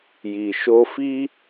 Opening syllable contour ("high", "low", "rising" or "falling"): low